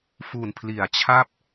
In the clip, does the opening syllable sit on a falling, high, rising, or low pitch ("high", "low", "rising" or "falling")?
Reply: low